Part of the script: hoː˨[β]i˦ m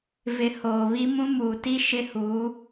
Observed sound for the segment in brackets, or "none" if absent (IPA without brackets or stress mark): β